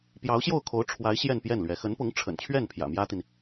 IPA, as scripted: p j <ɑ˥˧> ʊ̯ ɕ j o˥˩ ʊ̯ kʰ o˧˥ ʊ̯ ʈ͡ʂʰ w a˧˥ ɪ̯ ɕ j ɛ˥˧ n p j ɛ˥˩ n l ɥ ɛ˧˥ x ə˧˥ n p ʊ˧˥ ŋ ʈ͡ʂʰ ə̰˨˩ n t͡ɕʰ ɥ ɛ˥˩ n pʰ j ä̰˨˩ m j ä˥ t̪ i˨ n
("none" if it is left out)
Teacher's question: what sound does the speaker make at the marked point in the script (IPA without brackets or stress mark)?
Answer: ɑ˧˥